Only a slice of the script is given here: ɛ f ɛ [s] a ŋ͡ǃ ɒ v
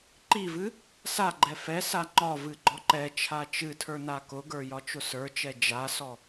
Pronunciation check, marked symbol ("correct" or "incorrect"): correct